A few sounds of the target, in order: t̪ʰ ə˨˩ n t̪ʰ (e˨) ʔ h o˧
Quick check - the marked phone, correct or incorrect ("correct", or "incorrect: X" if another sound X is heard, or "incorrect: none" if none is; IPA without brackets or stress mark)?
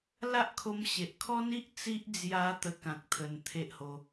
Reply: incorrect: e˦